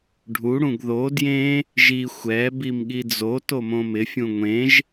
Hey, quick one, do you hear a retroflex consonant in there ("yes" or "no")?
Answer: yes